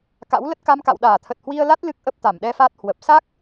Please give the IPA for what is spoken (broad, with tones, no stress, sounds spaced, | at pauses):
k a̰˧˥ w l ə˦˥ t̚ k a˧ m k a̰˧˨ w ɗ aː˧˩ t̪ʰ ə˨˩ t̚ h w i˧ ə̯ l a˦˥ t̚ l ɨ˦˥ k̚ ʔ ə˦˥ p̚ t̪ a˧˩ m ɗ ɛ˧ f a˦˥ t̚ h w ə˨˩ p̚ s a˦˥ k̚